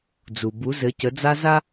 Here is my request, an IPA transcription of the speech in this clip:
d͡zu˨ bu˨˦zɘ˨˦cə˨˦d͡za˦ za˦

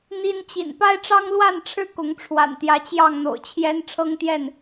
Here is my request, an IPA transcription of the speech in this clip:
n̪i˦n t͡ɕḭ˨˩n pa˦ɪ̯ʈ͡ʂɑ˦ŋlwa˥˨nʈ͡ʂʰɻ̩˥˨ kʊ˨˦ŋʈ͡ʂʰwa̰˨˩nt̪jä˨˦ t͡ɕjɑ˥˨ŋn̪o̰˨˩ʊ̯t͡ɕʰjɛ˦n ʈ͡ʂʰɤ˦ŋt̪jɛ˥˨n

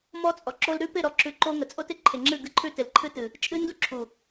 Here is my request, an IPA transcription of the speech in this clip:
mɔ˦t͡sʼɔ˨ǁo˦l ɾʉ˦pɪ˦˨ ɾɔ˦ǁʉ˦˨ ǃo˦ ŋə˨t͡sʼo˦tɪ˨ǃʰɪ˨ ŋ͡ǁɨ˦˨ɡɨ˦ǃʰʉ˦ tɪ˨lǃʰɨ˦tɨ˨ | t͡ʃʼɨ˦ndu˦ǁʰu˨

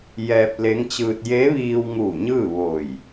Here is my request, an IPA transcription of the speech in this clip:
jɛː˧p̚le˧˥ŋt͡ɕɯː˧t̚ je˧˥ʋiː˧wŋu˧˩ ɲɯː˥˨ʋo˧˩j

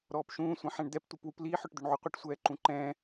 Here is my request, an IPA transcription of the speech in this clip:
ɾɔːpʃũː sʷɛ̃ħɛ̃ɳd̪ɛp tʷipwupliːħ œʈd̪øɳʕuqʷiʈ sʷɛːǃũǃɛ̃ː

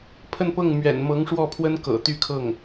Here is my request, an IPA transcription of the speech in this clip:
pʰə˥˧npɤ˥˩ŋmɥɛ̰˨˩n mɤ˧˥ŋʂwɔ˥˩pʰwə˥n kɤ̰˨˩t̪y˥˧kʰɤ˥˩ŋ

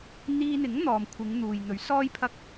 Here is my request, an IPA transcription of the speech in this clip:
n̪iː˧n̪ɪ˨˥ŋ n̪ɔː˨mkʷʰɪ˨˧ŋn̪uː˨j n̪ɵ˨˥ɥsɔː˥jpʰɐ˥k̚

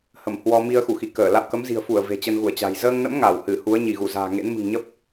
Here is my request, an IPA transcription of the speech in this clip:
hə˧˩mhwɔ˧mi˧ə̯ xu˧˩xi˧˩kəː˧˩ la̰˧˨wkə˨˦mzi̤˨˩ə̯fu˧˩ə̯ ve̤˨˩t͡ɕə˧nɣu˧˩ə̯t͡ɕa̤˨˩j zəː˧ŋnə̰˧˥m ŋa˧˩whɨ˧˩hu˨˦ə̯ ɲi˧˩ɣu˧˩za̤ː˨˩ŋḛ˧˥n mɨ̤˨˩ŋɲə˦˥p̚

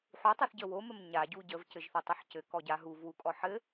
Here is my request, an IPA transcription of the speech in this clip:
ħutˤuθɟə woməm ɲaɟu ɟəvcɘʒθətˤɘħ cɘkɔɟa ɦuvwukʼɔ ħɘ

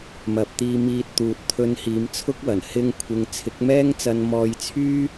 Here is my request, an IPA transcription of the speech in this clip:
mɐ˨p̚t̪iː˧miː˧t̚t̪uː˨t̚ t̪ʰɵ˧nhiː˨˧mt͡sʰʊ˥k̚wɐ˨˩n hɪ˧ŋkʷʰɪ˨ŋ t͡sʰɪ˨˥k̚mɛː˥ŋt͡sɐ˧n mɔː˧jt͡sʰyː˥

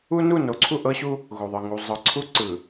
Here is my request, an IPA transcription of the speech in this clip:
u˦ nu˦˨no˨ǀʰu˦˨ ʔɤ˦ɕu˦ | ɣo˨ðˤɯ˨ ŋu˨ zˤɤ˨ǀʰu˦ ǀɯ˨

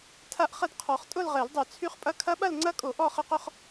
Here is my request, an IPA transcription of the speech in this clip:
tʰa˥˧ʔχə˥˧d qʰɔ˨˩˦χtʼʊ˥˧lʁɛ˨˩˦ldˤœ˨˩˦ t͡sʰy˦˥χpʼɐ˦˥ kʰɐ˦˥ɓɐ˥˧lŋ͡ǀɐ˦˥kʼo˨˩˦ ʔɔ˥˧χə˦˥qʊ˥˧χ

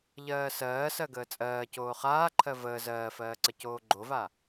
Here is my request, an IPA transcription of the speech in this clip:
ʎɜːsɜː sɜɡəːt͡sʼɜː coːχaːǃʰɜ vəː zɜːfɜːǀə coːɡ͡ǃova

